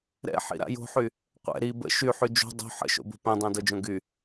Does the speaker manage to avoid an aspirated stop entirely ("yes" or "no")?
yes